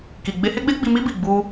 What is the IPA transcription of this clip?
k i˨ ɡ͡b e˧ h e˦ ɡ͡b e˦ ɡ͡b i˧ m i˦ b i˦˨ ɡ͡b u˧

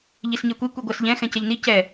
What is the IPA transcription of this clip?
ʎ i s ɲ ɜ kʷ i kʷ i ɡʷ ɜ s ʎ ɛ̃ x ɛ̃ c ɛ ʎ n i c ɛ

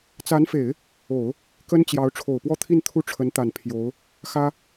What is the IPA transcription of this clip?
t͡s a˧˥ n f e˨˩˦ ɪ̯ | o˨˩˦ ʊ̯ | k ə˥ n t͡ɕ j ɑ˧˥ ʊ̯ ʈ͡ʂʰ o˨˩ ʊ̯ p w ɔ˥˧ t̪ʰ i˥˧ n t̪ʰ u˥˩ ʈ͡ʂʰ ə˧˥ n t̪ a˨˩ n pʰ j o˧˥ ʊ̯ | x ä˥

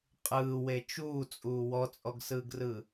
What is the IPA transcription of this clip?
qʼ ɯː w e t͡ʃ uː t͡sʼ uː w ɔ t͡sʼ ɔ ɡ s ɯː ɡ r ɯ

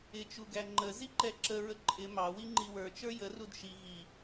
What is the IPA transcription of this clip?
ɪ t͡ʃ u ɡ æ ŋ͡ǃ ə z i ǃ ɛ ǁ ə ɹ ə ǃʼ ɪ m ɑ w i ŋ͡ǃ i w ə˞ t͡ʃ ə˞ j ə r u d ʃ i ɣ i

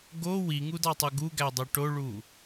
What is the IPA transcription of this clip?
ɡ o w i ŋ u d ɑ tˤ u ɡ u ɡ æ dˤ ø ʈ o ɭ u

